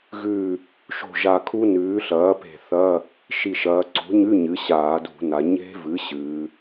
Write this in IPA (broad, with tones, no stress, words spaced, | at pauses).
ɣʉ˧˩ | ʃo̤˧˩ ʒa˧˩kʰu˦˥nʉː˩˥ ɬɐː˩˥pe̤˧˩θɐ˧˥˧ | ʃi˧˩ʃɐː˩˧ ǀṳ˩˥ɲʉ˧˥˧ ɲɨ˩˥ɕaː˧˩˧dṳ˧˩˧na˩˧ ɲe̤˦˥vɨ˩˥ ɕɨ˩˧